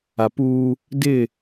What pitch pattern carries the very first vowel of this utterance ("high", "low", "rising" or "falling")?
low